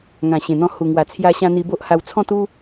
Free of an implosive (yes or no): yes